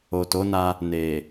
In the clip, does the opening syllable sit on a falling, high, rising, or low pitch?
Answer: low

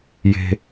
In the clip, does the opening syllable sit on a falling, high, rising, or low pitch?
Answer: high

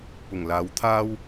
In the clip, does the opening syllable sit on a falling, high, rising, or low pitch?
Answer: low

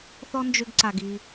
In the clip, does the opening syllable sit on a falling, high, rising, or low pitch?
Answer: high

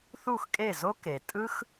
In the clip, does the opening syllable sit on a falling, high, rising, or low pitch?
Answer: falling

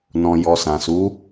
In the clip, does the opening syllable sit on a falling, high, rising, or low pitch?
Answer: low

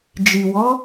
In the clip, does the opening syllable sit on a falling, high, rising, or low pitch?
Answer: low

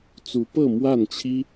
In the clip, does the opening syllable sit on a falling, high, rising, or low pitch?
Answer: rising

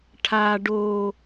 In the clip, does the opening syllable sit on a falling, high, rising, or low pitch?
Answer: high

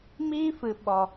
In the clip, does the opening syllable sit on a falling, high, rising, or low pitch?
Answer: high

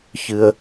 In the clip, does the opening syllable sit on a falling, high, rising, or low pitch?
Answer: high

